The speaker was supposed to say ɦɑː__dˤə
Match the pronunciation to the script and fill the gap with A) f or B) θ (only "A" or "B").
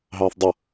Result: B